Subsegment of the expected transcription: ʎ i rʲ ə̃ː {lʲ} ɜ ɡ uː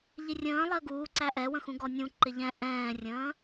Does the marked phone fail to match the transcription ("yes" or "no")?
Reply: yes